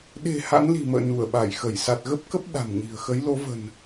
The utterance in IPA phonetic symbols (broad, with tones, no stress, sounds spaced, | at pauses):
ɗ e̤˨˩ h a̰˧˥ n l i̤˨˩ m ə̰ː˧˨ n u˧˩ ə̯ ɓ a˧˩ j x ə˧˩ j s a˨˩ t̚ ɣ ə˦˥ p̚ k ə˦˥ p̚ ɗ a̤˨˩ m ɲ i̤˨˩ ə̯ x ə˨˦ j l o˨˦ v ə̤˨˩ n